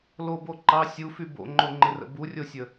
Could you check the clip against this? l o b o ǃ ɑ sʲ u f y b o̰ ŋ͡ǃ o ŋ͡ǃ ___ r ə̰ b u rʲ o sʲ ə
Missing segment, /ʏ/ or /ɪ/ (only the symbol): ɪ